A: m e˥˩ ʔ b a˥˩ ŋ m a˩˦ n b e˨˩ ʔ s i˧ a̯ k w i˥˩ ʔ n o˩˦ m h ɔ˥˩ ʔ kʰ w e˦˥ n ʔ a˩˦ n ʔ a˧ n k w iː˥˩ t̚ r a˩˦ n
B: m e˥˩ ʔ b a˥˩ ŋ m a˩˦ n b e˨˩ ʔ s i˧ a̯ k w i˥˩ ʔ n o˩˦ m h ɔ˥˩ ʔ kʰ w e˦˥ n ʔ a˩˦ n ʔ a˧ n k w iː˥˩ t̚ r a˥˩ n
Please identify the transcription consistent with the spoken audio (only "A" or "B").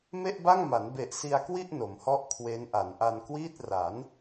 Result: A